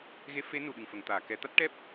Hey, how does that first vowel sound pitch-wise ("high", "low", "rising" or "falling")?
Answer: rising